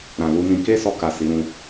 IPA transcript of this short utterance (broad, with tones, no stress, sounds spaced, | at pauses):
ɾ ã˨ l u˧ n ĩ˧ k e˦ s ɔ˧ k a˨ s i˨˦ ɾ ũ˧